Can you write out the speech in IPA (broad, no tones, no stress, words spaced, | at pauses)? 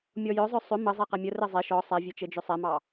mʲɔjœzˤœ sˤʏ mə zˤeqɛmʲə rɘzˤe ʃɔ sˤɛvʲet͡ʃɘ d͡ʒʏsˤɛmɑ